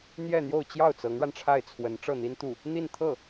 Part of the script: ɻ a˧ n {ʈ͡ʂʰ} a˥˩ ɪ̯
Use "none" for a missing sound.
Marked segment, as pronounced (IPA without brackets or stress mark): ʈ͡ʂʰ